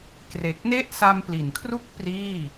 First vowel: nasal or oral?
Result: oral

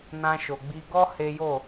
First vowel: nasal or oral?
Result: nasal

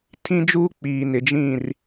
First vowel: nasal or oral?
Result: nasal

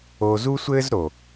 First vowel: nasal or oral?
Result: oral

